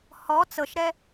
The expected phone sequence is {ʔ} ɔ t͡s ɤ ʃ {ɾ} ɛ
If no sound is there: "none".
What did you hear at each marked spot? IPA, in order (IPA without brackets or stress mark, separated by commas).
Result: h, ɾ